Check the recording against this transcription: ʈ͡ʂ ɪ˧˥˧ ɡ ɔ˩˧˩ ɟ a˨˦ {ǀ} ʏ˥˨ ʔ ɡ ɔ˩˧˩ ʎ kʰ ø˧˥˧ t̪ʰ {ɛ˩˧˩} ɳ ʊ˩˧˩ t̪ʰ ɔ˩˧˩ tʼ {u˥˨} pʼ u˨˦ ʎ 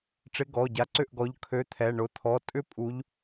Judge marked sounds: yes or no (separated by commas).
yes, yes, no